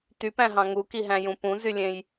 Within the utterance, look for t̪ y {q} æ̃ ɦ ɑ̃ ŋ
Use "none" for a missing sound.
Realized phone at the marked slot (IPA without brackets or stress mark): p